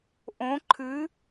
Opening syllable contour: rising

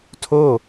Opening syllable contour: falling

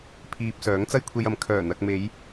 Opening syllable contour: low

